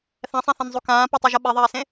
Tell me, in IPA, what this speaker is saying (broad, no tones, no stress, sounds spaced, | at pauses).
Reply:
θ ɛ̃ sˤ ĩ θ ɛ̃ n zˤ u k ãː p o tˤ u ʒ ʌ ɓ e ðˤ eː s ẽ